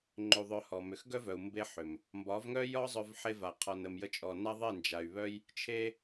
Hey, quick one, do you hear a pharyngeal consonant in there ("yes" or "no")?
yes